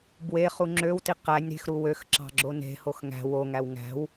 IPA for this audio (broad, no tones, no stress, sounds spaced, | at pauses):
b w e χ u ŋ͡ǁ ø w t i q æ nʲ ɾ e̤ x ɾ u w ø x ǁ ɑ̤ ɡ͡ǁ o n e̤ h o x ŋ æ̤ w o ŋ æ w ŋ æ̤ w